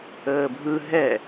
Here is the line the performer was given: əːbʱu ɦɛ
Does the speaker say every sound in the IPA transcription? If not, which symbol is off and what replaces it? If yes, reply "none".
u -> ɯ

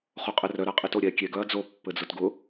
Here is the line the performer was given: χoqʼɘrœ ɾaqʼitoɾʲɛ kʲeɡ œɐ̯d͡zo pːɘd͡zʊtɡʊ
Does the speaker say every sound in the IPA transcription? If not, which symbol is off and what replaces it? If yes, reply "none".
none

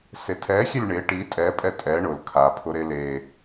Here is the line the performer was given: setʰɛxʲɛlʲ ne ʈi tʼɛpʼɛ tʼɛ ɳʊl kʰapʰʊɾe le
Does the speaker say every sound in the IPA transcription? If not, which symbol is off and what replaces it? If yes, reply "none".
n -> ɳ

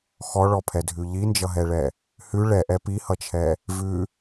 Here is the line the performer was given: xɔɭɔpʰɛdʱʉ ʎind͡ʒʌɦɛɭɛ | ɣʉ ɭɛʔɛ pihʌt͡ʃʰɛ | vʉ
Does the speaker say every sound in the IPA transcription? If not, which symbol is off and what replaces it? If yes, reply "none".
ɣ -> h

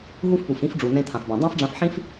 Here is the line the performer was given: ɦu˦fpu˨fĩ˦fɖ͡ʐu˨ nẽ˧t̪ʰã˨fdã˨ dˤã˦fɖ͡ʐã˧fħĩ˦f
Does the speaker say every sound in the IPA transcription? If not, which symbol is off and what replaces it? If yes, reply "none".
d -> b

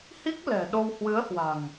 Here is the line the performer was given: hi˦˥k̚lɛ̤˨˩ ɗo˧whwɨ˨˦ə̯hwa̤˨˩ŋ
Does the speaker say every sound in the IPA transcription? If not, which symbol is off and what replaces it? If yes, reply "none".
none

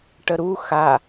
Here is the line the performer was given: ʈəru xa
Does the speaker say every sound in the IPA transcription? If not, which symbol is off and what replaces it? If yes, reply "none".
r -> ɾ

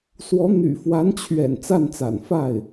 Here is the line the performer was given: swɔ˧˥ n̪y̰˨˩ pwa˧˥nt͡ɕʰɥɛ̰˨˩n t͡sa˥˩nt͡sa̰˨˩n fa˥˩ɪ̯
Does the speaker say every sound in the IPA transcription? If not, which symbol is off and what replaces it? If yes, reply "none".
p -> f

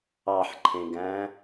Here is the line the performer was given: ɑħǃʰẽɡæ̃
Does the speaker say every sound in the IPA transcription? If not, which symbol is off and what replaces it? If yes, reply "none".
none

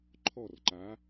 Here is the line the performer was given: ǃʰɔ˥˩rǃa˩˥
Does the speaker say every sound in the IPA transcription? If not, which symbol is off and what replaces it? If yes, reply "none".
none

